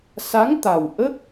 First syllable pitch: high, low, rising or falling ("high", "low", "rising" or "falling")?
rising